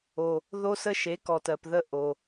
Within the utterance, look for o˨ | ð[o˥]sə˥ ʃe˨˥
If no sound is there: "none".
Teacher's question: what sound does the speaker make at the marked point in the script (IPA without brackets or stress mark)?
o˥